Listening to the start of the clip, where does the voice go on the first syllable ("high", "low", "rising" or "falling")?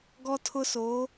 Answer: high